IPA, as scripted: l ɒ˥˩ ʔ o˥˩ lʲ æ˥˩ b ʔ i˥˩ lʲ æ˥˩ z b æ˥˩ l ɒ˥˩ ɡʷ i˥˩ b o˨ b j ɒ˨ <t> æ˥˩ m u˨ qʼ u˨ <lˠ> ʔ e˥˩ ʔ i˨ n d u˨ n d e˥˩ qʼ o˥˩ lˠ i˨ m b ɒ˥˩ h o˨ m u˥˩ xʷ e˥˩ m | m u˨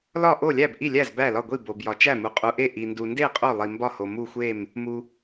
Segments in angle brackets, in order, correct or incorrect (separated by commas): incorrect, incorrect